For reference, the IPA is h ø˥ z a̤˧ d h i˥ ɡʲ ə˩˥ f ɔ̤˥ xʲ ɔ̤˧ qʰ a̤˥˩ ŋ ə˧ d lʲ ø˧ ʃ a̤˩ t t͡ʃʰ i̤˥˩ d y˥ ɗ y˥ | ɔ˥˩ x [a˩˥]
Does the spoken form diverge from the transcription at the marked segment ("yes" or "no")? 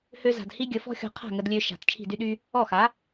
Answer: no